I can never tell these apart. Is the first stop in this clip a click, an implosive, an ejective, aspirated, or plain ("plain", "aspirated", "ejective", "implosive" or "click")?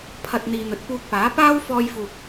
aspirated